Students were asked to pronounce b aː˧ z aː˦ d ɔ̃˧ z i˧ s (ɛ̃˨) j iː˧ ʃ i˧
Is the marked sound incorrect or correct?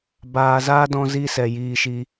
incorrect